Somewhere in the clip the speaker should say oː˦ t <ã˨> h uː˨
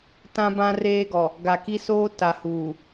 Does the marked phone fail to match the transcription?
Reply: yes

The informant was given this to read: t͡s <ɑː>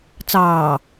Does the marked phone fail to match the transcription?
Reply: no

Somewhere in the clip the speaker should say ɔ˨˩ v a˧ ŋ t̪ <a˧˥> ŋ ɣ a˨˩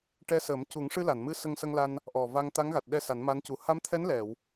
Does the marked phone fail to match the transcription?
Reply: no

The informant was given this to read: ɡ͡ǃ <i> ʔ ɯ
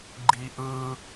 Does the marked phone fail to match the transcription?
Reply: no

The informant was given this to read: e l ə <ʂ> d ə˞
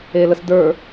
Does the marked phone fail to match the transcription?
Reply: yes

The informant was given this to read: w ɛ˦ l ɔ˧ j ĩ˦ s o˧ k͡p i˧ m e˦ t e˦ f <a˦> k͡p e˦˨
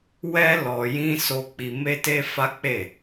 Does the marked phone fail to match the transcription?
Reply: no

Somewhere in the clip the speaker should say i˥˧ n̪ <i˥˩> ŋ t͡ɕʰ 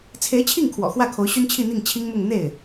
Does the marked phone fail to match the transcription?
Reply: no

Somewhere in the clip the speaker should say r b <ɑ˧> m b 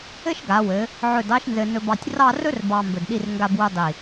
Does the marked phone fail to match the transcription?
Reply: no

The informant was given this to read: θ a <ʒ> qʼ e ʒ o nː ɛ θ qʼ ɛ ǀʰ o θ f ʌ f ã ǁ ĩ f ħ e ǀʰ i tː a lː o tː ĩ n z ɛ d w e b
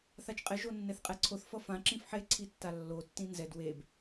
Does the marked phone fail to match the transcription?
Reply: yes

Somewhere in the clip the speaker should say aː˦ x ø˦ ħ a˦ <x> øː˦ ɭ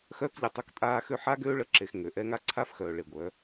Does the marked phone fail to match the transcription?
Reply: yes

